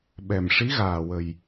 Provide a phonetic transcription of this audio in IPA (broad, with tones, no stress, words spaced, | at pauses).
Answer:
ɓɛ˨˩mʂi˧˥ ɣaː˨˩wə˨˩j